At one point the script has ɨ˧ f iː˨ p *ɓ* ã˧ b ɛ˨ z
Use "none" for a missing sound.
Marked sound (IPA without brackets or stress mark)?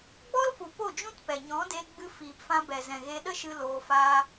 f